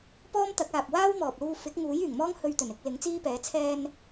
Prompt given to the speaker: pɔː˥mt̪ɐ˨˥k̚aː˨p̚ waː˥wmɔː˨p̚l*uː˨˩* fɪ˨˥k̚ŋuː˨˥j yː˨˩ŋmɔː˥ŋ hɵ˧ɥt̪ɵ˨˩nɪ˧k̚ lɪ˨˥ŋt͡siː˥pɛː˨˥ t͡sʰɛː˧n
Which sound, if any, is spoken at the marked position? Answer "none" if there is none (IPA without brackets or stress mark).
uː˧